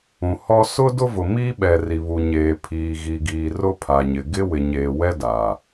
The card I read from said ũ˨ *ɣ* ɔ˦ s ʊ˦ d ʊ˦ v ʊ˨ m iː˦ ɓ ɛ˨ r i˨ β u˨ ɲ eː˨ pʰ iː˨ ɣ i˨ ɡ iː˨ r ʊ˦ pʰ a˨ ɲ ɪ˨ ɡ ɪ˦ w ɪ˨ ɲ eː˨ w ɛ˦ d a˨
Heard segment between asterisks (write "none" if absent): h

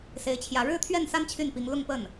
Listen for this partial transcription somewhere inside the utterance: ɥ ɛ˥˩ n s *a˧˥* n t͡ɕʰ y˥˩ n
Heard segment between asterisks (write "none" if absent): a˥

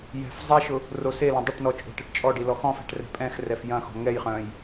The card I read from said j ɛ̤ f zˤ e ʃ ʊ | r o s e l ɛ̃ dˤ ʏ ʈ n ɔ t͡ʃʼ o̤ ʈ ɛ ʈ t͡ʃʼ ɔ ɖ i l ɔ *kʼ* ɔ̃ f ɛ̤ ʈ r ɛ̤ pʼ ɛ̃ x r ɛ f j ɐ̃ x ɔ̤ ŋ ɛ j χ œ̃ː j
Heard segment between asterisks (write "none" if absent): x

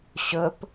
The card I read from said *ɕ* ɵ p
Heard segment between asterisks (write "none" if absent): ɕ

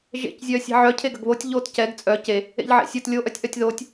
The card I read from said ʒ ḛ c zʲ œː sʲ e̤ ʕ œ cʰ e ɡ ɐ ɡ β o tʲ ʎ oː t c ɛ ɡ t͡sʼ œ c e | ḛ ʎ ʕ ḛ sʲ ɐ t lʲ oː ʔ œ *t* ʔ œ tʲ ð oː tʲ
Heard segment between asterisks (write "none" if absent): tʲ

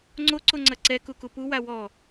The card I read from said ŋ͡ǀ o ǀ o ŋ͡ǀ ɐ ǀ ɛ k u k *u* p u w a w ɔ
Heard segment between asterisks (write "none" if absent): u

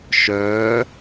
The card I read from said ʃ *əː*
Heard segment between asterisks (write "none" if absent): œː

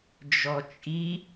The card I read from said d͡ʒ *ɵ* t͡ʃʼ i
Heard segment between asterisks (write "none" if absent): ɔ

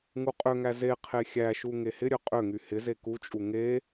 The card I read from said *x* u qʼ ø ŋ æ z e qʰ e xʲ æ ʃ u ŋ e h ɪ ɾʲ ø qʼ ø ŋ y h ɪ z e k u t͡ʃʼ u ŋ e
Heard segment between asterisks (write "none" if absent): ŋ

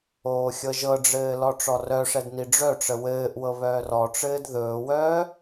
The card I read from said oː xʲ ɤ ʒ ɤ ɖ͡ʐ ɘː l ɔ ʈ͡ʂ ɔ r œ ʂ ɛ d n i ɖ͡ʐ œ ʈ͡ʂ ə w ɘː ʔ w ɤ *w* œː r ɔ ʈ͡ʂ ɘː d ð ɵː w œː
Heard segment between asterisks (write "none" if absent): β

